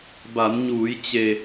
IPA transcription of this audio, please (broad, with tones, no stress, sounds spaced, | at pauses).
b a˩˧ n ɲ uː˩˧ j t͡ɕ e˩